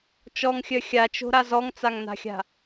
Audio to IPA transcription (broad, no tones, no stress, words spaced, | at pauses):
t͡ʃɔŋxʲœ xʲat͡ʃo̤ɾa zɔŋt͡saŋna̤xʲa̤